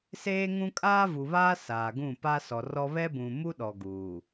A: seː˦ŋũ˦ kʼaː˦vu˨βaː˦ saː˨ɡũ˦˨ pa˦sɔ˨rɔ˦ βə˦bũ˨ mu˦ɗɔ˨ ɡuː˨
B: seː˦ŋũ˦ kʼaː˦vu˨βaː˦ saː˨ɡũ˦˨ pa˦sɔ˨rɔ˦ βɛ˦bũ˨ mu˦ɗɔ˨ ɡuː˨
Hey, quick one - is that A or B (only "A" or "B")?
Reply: B